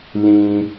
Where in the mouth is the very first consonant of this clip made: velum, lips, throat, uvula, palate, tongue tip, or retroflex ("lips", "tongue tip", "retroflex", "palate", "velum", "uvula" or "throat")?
tongue tip